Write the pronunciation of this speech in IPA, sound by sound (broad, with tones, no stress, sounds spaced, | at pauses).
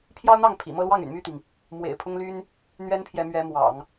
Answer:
pʰ j ɑ˥ ʊ̯ n̪ ɑ˥˩ ŋ pʰ ḭ˨˩ m ɤ˥˧ l w ɑ˥˩ ŋ y̰˨˩ n m y˥˩ t̪ i˩ ŋ | m w ḛ˨˩ ɪ̯ pʰ ʊ˥ ŋ l y˥ n | n̪ ɥ ɛ˥ n pʰ j ɛ˧˥ m ɥ ɛ˧˥ m w ɑ̰˨˩˦ ŋ